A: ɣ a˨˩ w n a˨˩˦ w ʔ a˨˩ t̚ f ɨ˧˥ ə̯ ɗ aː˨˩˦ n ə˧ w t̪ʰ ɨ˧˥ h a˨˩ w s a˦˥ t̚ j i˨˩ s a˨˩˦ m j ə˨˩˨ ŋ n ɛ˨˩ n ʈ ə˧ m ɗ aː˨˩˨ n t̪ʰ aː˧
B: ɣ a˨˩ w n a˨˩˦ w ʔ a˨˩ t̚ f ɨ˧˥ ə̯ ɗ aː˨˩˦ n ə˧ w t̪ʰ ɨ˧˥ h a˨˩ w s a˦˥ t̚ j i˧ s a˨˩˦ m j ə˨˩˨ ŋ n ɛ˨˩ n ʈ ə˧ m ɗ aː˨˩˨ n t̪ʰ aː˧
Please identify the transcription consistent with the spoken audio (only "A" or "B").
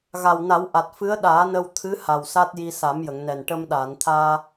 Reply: B